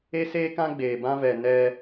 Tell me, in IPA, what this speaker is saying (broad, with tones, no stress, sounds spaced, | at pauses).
e˦ s eː˦ k ã˦ ɡ͡b eː˧ b ã˦ v ɛ˧ n ɛ˧